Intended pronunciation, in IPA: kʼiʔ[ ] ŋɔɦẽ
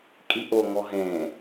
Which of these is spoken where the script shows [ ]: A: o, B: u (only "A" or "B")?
A